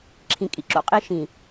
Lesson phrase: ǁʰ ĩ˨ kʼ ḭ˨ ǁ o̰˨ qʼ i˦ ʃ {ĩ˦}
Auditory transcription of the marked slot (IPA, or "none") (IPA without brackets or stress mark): ĩ˨